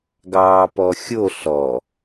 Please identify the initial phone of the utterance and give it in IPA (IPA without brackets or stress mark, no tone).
ɡ